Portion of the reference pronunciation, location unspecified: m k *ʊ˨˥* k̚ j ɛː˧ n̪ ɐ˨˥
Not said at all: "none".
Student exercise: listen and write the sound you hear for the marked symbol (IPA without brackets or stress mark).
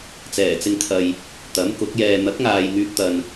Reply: ʊ˨˥